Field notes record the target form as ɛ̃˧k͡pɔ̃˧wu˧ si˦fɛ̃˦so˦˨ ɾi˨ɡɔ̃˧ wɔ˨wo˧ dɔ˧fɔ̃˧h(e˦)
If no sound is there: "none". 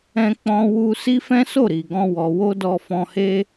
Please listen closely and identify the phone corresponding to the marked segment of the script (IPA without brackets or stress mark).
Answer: e˦